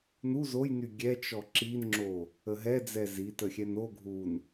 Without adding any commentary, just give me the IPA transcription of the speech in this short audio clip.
n u z o j n y ɡʲ ɛ t͡ʃ ɔ ǁ i n ŋ͡ǁ o | ə ɦ ɛ d͡z ɛ z i t ə xʲ ɛ n o ɡʱ u n

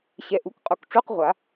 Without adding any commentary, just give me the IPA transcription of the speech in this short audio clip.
ɕ ɛ˨ ʔ u˩˥ k qʼ u˨ k ʈ͡ʂ u˧˥˧ q ʁʷ a˨˩˦

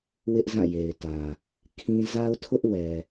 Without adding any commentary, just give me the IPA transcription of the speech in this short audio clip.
w ɪ˦ ʔ z ã˦˨ j e˨ ɪ̯ t ä˨ | kʰ ĩ˦ z a˦ ʊ̯ tʰ ʊ˦ ʔ w ɛ˨

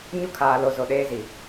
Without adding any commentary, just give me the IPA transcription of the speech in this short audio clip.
ɲ u˦ kʰ aː˨ l o˨ z o˨ ɗ eː˦ z i˨

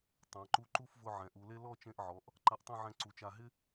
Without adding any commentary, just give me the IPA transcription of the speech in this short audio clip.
tˤ ã˩˧ ǃ u˧ ǃ u˥˧ f v ʊ˧ ʕ ɛ̃˩˧ ʔ u˩˧ l e˥ l ɔ˥˧ t͡ʃ ẽ˧ ʔ ʕ ɔ˩˧ ʔ | ǃ a˧ ʔ tˤ ẽ˥˧ ʕ ɛ̃˧ ǀ u˩˧ t͡ʃ a˧˩ ɦ ɪ˥

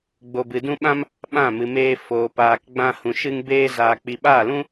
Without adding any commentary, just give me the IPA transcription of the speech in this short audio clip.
ɡ͡b o˨ b ɨ˨ d ũ˦ ɓ ã˦ m | ɓ ã˦˨ m ɨ˨ m eː˧ f oː˨ p aː˨ k ɡ͡b ã˧ h ũ˨ ʃ ɨ˧ ŋ b eː˧ z aː˨ k͡p i˨ ɓ aː˦˨ l ũ˦

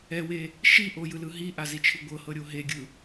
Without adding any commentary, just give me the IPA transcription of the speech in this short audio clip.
ɛ w e | ʃ i ʔ o j ɯ l ɯ ɦ i ʔ a z i t͡ʃʰ ɯ ɡʷ ɤ h ɤ ɾʲ o ɦ e ɡʲ ɯ

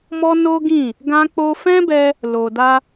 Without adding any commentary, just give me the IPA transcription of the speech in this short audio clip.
m ɔ˦ n o˦ ɡ ĩ˦˨ | ɡ ã˧ k͡p o˧ f ɛ̃˦ b ɛ˧ | l o˨ d a˧

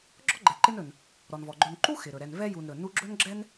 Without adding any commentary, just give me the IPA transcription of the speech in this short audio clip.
ɡ͡ǁ ɔ˥ ɡ͡ǃ ɛ˨ ǃ ɪ˦ n ɵ˩ n | ɾ ɔ˩ n v ɔ˩ ɡ͡ǃ ɵ˨ n ǃ u˥ x ɪ˩ ɾ ɵ˩ ɾ ɛ˨ n v ɛ˥ j u˨ n ɾ ɵ˩ n u˦ ɡ͡ǁ ɵ˥ n ɡ͡ǁ ɛ˥ n

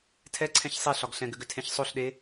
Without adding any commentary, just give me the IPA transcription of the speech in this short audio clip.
tʰ ɛ ǀʰ ɛ̃ ç sˤ e ɬ ɒ ɡ ɬ ɛ̃ ɡ ʏ ɡ ʏ tʰ ẽ ç sˤ o ɬ ɗ e

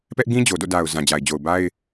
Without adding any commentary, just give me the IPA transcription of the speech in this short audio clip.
p ɛ˦ ʔ ɡ ĩ˦ d͡ʑ o˨ d o̰˦˨ d a˨ ʊ̯ z ã˨ d͡ʑ a˨ ɪ̯ d͡ʑ o˨ ʊ̯ b a˦ ɪ̯

